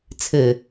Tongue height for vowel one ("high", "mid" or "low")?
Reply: mid